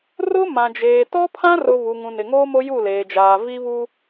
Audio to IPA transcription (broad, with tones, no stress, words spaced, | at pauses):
rʊ˦ mã˨d͡ʒeː˨ tɔ˦pʰã˦rʊ˨ βu˨ŋũ˨nɪ˨ŋoː˦ mo˦ju˦˨leː˨d͡ʒaː˨ vi˦βu˦